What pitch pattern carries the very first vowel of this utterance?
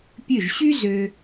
falling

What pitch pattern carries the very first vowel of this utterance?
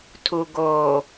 low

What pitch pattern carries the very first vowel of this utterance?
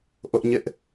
high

